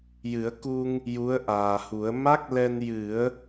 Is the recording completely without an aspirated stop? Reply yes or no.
yes